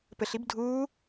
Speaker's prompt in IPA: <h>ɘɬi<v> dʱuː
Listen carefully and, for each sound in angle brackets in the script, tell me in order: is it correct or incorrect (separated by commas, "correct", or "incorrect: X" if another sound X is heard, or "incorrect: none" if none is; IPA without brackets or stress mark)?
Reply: incorrect: p, incorrect: b